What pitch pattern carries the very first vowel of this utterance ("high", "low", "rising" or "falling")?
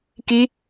high